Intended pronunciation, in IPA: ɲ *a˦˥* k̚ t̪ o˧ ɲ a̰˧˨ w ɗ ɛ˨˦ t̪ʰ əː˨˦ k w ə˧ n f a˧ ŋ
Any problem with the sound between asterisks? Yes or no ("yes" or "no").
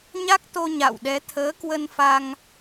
no